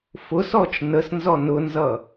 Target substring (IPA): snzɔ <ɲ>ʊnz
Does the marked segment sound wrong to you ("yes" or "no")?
yes